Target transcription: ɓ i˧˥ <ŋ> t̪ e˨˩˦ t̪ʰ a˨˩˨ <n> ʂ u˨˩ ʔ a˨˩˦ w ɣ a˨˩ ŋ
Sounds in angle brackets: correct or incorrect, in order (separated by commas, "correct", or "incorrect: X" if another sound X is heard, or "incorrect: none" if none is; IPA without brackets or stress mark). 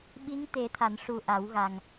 correct, correct